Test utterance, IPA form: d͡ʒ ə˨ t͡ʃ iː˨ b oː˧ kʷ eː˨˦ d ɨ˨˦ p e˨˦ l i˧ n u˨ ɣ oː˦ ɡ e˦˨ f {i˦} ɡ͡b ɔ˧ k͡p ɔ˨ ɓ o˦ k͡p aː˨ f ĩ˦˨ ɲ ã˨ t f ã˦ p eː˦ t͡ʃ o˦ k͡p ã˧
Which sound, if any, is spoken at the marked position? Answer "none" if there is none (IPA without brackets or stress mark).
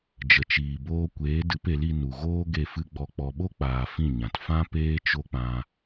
ɨ˦